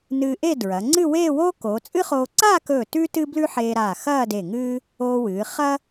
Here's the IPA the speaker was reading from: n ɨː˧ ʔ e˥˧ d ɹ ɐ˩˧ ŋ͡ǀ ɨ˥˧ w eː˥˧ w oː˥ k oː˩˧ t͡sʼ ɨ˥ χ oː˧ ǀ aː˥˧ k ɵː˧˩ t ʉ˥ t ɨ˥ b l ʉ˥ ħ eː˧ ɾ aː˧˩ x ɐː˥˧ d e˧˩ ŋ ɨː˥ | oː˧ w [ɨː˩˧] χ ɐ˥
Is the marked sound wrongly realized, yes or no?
no